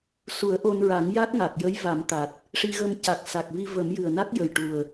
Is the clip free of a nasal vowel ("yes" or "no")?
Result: yes